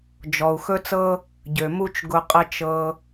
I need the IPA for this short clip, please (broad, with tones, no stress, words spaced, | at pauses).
d͡ʒɔ˨u̯ xɵ˦t͡sɤ˦ | ɟø˨mu˦t͡ʃ ɡʊ˧qʼə˦ t͡ʃɤ˧